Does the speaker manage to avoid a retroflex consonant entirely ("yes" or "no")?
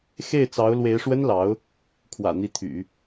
no